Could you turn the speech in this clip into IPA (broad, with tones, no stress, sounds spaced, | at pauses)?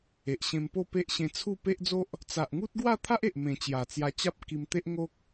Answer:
e˨ ʔ ɕ ẽ˧ m p o˥˧ p e˦ ʔ ɕ ẽ˧ t͡sʰ u˥˧ p e˦ ʔ d͡z o˦ ʔ | t͡s a˨ ʔ ŋ u˦ t̚ ɡ w a˥˧ t̪ʰ a˦ ʔ e˨ ʔ m ẽ˨˩ t͡ɕ j a˨˩ t͡s j a˧ t͡ɕ a˦ p̚ k i˧ m t̪ e˦ ʔ ŋ o˦ k̚